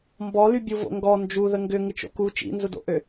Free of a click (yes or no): yes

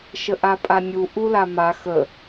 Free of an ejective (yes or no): no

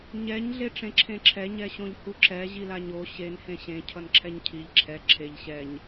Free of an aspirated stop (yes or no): no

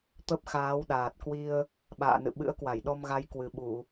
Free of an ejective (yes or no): yes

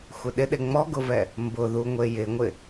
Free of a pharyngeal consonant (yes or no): yes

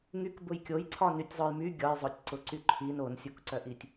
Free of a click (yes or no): no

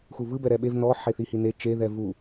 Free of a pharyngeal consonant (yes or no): no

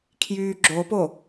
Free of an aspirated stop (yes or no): no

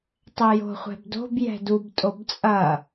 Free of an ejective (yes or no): no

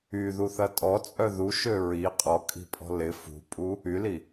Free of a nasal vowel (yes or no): yes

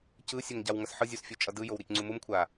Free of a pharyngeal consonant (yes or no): no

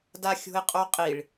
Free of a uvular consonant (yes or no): no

